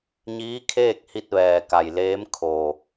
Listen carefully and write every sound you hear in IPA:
ɲ iː˧˥ kʰ eː˥˨ k̚ h i˧ t̚ ʋ ɛː˩ k a˩ j l eː˧˥ m kʰ oː˩

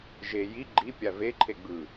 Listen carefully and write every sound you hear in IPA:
ʒ e j i ɡ͡ǃ i pʲ a v e ǃʰ e ɡ͡b ɯ

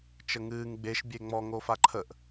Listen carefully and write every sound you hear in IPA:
t͡ʃ ə ŋ ɨː ŋ ɡ͡b e ʃ bʲ e ŋ͡m ɔ ŋ oː f a ǃʰ ə ʔ

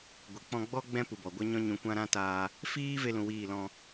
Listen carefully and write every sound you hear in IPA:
ɡʷ e˨ k͡p ɔ̃˧ ɡ͡b ɔ˦ ɡ͡b ɛ̃˦ p u˨ b ɔ˨ ɡʷ a˦ ɲ ɔ̃˦ ɲ ũ˧ kʷ ã˦ ɾ ã˦ t aː˧ | f iː˦ v e˦ l ũ˧ w iː˦˨ l ɔ̃˧

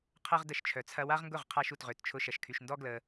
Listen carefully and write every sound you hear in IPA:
qʰ ɐ˦ ʁ d ə˧ ʃ t͡ʃʰ œ˨ t͡sʰ ɐ˧ w a˦ ʁ ŋ ɡ ʊ˦˨ ʁ qʰ a˧ ʃ u˨ t ʁ ø˨ t t͡ʃʰ ʊ˧ ʃ ɐ˨ ʃ kʰ y˨ ʃ n d ɔ˦ ɡ l ə˧

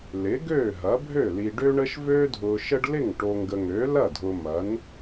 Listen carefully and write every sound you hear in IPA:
l ɪ˩˥ ɡ øː˥˩ ɦ ɐ˩˥ bʱ ø˥˩ l i˨ ɖ ø˦ ɳ ə˦ ʃ v øː˦ dʱ ʊː˨ ʃ ə˦ ɖ l ɪ˥˩ ŋ ʈ o˨ ŋ ɡ ə˨ ŋ øː˩˥ l ɐ˥˩ dʱ ʊː˨ m ɐ˩˥ n

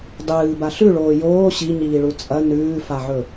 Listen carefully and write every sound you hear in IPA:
dˤ ɨː b a ɬ ʉ ɭ oː j oː ɕ i ɲ iː ɭ u t͡sʼ ɐ n ʉː f a ʕ ɵ

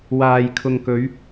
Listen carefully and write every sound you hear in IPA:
w aː˨ j kʰ ʊ˨ ŋ k ɵ˨˧ ɥ

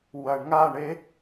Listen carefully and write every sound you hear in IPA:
w ɐ ɳ ŋ a ɳ e

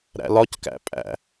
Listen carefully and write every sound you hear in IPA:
ɾ æ̰ l ɒ c k æ̰ pʼ æ̰

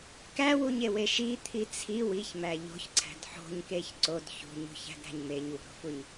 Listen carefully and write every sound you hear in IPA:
k æ w u ɲ e w e ʃ i t̪ʰ i t͡sʰ i w i ç m æ ʎ o̤ ç ǀʰ æ̤ d ħ o̤ ɲ k e ç ǀ o d ç ṳ ɲ ṳ ç æ̤ d ɾ æ̤ ɲ m e ɲ w ṳ ɾ o̤ f u ɲ

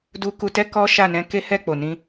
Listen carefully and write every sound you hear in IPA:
d u˧ k u˧ t ɛ˦ k ɔ˦ ʃ a˦˨ n ɛ̃˧ k e˦ h ɛ˦˨ k͡p o˨ n ĩ˧

